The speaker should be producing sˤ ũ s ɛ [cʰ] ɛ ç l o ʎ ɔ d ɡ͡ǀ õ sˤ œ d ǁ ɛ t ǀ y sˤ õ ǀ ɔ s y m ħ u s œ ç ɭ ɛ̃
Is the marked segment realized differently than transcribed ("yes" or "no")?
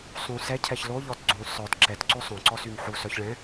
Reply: no